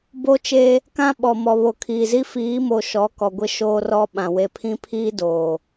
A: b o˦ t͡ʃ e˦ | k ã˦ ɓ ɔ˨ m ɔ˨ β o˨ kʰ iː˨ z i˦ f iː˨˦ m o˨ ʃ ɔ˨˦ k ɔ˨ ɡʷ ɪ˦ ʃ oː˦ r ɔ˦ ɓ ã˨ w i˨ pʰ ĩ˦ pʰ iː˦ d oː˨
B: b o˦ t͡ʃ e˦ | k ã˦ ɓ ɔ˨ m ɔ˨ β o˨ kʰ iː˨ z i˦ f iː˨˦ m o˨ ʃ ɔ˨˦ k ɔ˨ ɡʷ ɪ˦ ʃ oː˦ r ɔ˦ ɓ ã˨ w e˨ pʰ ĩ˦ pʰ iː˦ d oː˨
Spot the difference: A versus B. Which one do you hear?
B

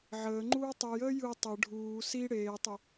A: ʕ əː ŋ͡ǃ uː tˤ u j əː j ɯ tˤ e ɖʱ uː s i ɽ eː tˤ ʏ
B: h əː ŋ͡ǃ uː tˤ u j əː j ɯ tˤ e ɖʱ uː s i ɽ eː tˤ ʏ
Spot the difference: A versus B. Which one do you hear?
A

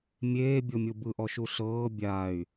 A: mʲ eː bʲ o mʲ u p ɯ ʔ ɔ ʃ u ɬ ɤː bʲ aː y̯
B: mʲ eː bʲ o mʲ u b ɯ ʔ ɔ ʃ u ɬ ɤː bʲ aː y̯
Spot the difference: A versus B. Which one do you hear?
B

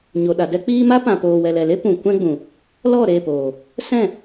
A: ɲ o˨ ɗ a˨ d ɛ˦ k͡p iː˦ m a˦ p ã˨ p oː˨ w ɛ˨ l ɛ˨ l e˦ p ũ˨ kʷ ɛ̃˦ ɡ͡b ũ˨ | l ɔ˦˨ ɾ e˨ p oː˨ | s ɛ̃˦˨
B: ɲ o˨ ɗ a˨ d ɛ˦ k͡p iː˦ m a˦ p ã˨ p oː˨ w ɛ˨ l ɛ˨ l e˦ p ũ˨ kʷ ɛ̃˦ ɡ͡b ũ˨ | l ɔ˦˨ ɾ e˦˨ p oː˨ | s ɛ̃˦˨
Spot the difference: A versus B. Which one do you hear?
B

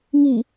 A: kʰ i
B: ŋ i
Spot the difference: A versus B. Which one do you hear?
B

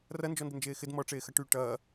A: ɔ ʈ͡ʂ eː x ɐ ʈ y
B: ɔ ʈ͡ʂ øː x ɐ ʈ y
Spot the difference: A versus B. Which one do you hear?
A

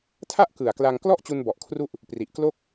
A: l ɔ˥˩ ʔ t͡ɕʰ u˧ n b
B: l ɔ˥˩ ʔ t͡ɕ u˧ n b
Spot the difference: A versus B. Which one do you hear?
B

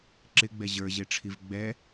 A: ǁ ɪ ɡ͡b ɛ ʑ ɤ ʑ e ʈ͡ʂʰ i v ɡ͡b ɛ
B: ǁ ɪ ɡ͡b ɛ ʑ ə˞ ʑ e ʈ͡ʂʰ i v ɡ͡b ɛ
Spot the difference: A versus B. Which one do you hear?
B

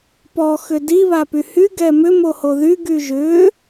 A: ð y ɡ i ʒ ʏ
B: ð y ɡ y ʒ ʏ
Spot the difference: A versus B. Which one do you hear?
B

